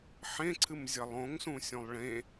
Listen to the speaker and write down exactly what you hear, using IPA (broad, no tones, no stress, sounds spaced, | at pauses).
ħ ẽ ǀʰ ɨ m zʲ ɐ lˠ õ ŋ s ũ sʲ õ lˠ ɭ ẽ